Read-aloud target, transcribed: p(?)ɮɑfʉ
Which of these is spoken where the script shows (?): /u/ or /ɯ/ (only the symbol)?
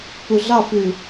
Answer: u